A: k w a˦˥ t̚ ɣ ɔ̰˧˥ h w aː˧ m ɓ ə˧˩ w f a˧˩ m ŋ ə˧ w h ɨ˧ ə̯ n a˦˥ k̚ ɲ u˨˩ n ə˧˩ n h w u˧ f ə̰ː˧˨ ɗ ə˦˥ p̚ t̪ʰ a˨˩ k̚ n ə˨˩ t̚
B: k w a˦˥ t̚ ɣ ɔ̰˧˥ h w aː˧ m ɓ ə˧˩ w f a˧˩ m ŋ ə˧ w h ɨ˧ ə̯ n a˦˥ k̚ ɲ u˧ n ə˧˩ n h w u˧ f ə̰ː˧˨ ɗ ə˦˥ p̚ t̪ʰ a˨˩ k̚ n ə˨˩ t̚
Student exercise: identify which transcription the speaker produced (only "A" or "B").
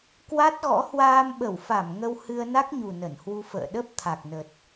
A